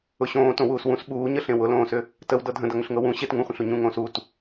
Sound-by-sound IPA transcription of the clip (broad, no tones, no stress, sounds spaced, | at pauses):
ʊ ɕ õː t õ w uː s w ũ s ɓ uː ɲ ə ɬ ẽ w ʊ l õː s ʏ | t ə w d ɤ dʱ ə̃ d ʌ ŋ ʏ ɬ ŋ ɤ w ũ ɕ e t ŋ ũ χʷ ə̃ ɬ u ɲ ũ ŋ õː s u t